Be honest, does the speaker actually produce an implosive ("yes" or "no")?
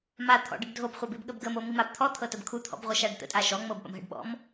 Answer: yes